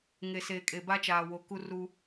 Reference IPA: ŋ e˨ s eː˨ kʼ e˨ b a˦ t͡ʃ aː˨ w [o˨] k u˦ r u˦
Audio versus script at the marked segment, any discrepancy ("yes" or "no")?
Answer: no